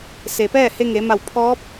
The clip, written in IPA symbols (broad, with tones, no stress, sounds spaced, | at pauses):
s e˩ p ɛː˥˨ h e˧ ŋ e˩˧ m a˧˩ w pʰ ɔː˧˥ p̚